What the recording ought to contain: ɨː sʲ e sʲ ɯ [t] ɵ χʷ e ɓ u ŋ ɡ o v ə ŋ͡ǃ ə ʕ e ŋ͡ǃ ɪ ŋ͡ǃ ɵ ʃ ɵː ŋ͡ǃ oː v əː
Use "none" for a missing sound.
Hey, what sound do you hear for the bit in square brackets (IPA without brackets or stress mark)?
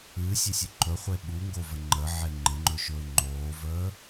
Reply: ǃ